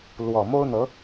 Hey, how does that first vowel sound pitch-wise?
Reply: low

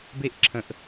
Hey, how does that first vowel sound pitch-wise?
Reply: high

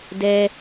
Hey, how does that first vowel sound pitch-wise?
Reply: high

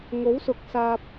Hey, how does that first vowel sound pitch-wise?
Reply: rising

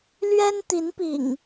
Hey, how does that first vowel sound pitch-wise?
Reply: high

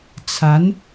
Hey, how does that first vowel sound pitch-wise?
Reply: rising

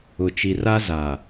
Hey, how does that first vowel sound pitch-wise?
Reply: low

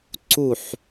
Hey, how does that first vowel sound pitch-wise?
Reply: falling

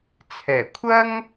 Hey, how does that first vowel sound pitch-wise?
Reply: low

